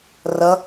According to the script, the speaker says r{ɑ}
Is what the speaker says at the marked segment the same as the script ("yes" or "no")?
no